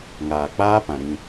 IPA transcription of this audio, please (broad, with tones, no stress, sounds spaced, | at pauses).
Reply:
ŋ aː˨ k͡p aː˦ p ã˨ ɾ ĩ˧